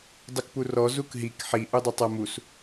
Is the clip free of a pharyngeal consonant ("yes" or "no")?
no